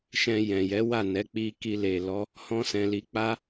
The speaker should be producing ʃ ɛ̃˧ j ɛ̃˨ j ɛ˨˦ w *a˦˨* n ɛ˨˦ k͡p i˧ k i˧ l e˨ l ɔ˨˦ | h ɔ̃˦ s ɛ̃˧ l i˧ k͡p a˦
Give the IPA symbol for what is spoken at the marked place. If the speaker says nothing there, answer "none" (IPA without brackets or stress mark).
a˦˨